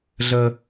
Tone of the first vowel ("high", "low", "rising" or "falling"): low